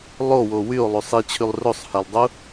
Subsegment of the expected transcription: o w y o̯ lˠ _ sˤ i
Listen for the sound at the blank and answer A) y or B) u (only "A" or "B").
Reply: B